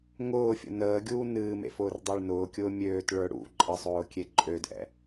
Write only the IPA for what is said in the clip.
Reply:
ŋʊːfʲə̰ nəːɡʲuː nɨːmḛfʊːrdˤə˞ɭ nʊːkʲʊː mʲøːtɭə˞ ɽṵ ǃʼəsˤʊːkʲe ǃʼødʔɛ̰

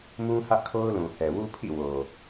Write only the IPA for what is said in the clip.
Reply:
mũ˦hä˦ʔkʰo˦ʊ̯ lũ˨hɛ˨ wu˦pʰḭ˦˨wo˨

